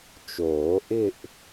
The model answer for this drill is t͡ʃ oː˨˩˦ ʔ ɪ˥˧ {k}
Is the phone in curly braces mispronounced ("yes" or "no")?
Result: yes